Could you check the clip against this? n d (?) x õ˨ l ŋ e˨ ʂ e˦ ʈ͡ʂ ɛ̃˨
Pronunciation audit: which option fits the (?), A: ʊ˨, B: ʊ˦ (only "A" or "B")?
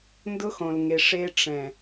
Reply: B